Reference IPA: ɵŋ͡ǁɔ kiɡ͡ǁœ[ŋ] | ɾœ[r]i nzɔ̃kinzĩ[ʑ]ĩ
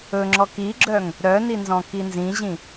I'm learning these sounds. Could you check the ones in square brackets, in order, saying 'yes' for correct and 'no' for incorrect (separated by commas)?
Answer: yes, no, yes